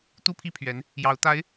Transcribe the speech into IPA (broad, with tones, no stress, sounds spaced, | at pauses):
t̪ u˥ pʰ i˥˩ pʰ ɥ ɛ˧˥ n | j ɑ˧˥ ʊ̯ t̪ a˧˥ ɪ̯